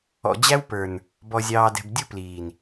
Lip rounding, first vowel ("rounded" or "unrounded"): rounded